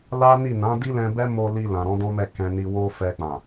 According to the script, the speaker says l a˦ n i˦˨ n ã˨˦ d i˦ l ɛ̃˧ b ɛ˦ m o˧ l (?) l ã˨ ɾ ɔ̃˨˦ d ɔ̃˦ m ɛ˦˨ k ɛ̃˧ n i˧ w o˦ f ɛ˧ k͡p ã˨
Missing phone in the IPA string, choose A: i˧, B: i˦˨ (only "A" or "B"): A